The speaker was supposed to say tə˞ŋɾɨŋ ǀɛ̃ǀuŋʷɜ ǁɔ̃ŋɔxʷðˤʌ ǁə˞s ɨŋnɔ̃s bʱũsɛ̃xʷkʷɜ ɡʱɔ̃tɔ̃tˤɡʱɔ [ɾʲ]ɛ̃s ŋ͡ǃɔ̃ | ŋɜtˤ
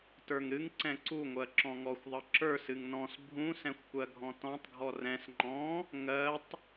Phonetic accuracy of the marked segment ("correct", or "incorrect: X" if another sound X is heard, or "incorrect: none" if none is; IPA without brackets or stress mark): incorrect: r